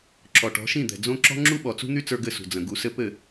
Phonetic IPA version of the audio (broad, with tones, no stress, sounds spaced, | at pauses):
ǁ ɔ˨ ʈ ɔ̤˨˦ ʃ ĩ˦˨ d̪ ɛ̤˨ d͡z õ˦ ǁ ɔ̤˦ ŋ͡ǁ u˦ ɓ ɔ˨ t͡s ṳ˦ n̪ y˦ t͡s ə˞˧ ɡ ɘ˦˨ s ṳ˨ d͡z ə̃˨ ɡ u˨ s ɘ˧ p ɘ˦˨